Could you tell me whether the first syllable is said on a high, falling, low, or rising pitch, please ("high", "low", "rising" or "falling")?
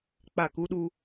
falling